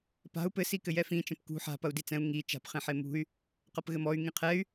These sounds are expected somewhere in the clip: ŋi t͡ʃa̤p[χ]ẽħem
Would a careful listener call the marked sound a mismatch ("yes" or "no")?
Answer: no